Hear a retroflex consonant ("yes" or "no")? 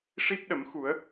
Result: yes